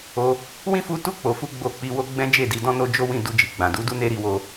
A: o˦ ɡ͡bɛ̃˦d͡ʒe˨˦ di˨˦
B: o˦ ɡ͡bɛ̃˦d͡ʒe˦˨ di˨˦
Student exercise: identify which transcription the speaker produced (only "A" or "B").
B